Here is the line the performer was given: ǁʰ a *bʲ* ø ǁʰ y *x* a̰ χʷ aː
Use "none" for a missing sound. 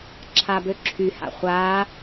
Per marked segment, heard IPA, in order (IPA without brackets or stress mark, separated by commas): b, h